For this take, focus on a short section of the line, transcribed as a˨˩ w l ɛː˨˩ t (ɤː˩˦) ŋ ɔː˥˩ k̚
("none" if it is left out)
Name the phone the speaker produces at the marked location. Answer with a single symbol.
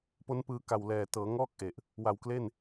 ɤː˩˦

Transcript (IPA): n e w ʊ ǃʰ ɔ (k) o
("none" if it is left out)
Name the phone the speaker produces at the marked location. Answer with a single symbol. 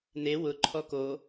k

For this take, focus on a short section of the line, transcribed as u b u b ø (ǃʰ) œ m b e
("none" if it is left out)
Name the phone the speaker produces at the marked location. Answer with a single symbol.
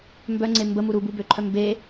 ǃʰ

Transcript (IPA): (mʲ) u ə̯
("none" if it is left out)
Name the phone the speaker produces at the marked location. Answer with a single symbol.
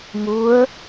m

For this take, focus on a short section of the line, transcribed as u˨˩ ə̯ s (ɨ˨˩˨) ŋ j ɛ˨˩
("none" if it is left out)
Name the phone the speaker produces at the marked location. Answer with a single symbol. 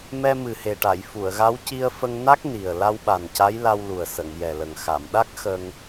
ə˨˩˨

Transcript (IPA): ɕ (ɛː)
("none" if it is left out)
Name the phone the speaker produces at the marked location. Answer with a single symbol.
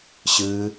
ɨː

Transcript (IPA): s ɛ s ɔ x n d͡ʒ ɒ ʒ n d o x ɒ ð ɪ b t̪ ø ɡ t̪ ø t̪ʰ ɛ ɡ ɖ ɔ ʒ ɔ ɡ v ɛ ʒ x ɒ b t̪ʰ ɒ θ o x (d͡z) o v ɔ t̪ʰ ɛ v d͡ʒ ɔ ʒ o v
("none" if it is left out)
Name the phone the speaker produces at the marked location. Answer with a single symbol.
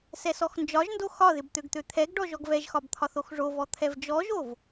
ʐ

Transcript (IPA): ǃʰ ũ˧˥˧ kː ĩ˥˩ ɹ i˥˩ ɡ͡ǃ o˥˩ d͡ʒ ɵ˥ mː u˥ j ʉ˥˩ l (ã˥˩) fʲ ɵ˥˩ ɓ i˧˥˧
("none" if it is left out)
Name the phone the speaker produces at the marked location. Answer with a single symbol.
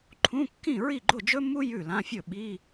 ã˧˥˧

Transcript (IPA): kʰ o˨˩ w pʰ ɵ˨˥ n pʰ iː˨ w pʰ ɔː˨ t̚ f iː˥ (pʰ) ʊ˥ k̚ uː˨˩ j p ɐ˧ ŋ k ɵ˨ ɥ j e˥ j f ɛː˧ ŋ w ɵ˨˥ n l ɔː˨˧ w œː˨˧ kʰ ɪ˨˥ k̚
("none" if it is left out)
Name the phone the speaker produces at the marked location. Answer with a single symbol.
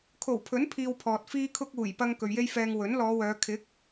kʰ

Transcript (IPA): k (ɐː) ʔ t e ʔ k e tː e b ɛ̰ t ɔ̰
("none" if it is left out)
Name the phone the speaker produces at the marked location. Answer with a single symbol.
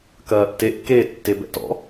ɐː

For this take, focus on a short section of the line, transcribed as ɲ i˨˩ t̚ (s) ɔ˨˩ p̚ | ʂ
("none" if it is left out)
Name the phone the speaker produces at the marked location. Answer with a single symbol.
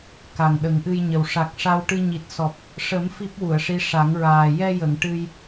s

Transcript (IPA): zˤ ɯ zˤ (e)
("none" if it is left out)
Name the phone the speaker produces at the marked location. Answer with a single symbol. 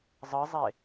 e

